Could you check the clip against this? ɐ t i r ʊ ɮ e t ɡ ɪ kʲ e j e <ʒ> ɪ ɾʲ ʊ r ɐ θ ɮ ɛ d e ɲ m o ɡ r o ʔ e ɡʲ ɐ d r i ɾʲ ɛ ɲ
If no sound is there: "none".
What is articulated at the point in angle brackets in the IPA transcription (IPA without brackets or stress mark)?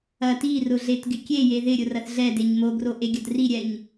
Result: ð